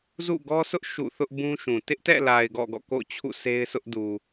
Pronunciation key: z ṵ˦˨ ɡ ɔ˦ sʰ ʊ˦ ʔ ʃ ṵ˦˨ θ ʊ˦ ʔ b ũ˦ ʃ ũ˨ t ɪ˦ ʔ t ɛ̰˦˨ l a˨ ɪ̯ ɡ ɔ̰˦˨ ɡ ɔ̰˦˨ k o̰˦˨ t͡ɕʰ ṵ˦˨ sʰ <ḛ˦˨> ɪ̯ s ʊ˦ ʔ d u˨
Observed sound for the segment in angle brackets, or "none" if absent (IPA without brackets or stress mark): e˦